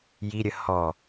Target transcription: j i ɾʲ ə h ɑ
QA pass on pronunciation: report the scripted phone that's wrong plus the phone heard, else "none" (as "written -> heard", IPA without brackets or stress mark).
ɑ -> ɔ